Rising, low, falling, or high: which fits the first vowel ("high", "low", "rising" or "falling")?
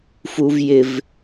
high